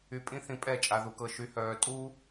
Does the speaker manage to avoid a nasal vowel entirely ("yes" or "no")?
no